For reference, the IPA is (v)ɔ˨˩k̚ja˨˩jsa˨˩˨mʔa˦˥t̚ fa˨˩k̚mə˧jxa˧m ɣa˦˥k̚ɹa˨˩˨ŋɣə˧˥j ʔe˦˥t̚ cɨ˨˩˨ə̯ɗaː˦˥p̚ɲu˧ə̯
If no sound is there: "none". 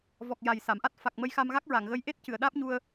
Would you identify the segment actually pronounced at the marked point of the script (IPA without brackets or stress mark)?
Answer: v